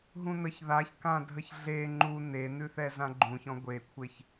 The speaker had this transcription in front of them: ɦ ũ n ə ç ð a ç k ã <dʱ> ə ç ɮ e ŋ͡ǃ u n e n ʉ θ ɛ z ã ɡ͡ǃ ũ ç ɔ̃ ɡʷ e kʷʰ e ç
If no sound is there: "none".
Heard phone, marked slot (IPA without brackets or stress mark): dʱ